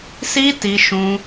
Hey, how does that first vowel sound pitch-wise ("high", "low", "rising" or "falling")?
high